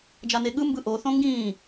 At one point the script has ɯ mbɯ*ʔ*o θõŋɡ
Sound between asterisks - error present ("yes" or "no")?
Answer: no